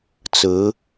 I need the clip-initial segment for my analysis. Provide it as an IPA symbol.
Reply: t͡s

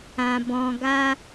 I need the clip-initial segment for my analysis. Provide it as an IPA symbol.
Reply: ã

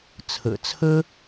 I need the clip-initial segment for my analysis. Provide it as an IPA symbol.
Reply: t͡sʰ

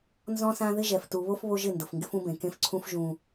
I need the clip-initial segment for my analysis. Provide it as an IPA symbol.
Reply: n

